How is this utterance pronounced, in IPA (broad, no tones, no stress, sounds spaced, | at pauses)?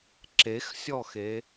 ǁ e x sʲ ɔ x e